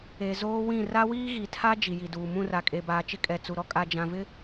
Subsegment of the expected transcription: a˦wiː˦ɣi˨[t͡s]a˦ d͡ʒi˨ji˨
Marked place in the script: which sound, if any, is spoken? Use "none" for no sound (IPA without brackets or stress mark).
tʰ